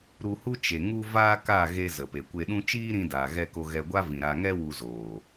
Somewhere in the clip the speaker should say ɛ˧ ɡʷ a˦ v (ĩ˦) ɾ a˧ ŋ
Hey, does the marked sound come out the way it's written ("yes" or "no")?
no